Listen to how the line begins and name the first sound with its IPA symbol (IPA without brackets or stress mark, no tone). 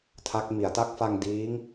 tʰ